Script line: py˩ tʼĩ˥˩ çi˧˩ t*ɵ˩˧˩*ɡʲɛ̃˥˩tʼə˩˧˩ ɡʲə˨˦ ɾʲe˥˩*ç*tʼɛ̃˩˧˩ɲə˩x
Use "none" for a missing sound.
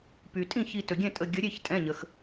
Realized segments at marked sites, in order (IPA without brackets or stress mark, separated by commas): ɵ˩, ç